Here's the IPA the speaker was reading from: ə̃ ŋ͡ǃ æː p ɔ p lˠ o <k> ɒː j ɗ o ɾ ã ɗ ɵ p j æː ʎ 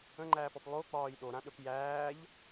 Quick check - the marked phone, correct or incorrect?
incorrect